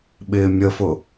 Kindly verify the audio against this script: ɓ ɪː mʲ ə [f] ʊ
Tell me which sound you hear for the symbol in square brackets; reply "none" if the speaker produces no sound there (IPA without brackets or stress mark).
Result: f